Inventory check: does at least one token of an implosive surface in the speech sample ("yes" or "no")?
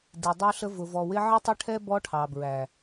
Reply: no